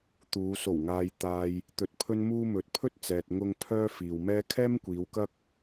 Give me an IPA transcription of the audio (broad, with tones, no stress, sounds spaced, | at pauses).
t̪ uː˨˧ s o˨˩ w ŋ aː˨ j t̪ aː˨ j | t̪ ɵ˧ t̚ pʰ ɵ˥ n m uː˥ m ɵ˨ t̚ pʰ ɵ˥ t̚ t͡s ɛː˨ t̚ ŋ ʊ˧ ŋ pʰ œː˥ f iː˨ w m ɛː˥ kʰ ɛː˥ m kʷ iː˨˧ w k ɐ˥ k̚